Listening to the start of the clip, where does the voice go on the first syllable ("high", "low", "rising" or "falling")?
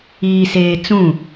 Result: low